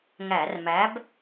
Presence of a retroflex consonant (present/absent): absent